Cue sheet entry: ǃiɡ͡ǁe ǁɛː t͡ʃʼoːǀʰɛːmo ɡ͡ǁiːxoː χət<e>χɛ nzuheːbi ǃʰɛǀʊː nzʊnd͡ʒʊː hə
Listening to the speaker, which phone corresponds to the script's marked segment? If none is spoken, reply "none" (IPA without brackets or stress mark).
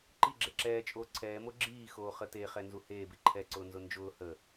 e